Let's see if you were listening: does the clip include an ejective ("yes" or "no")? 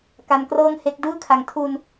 no